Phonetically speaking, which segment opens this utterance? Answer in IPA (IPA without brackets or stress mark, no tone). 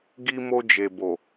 ɡ